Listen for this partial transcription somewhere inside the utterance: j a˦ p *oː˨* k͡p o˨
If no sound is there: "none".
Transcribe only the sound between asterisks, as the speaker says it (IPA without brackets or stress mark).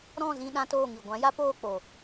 oː˦˨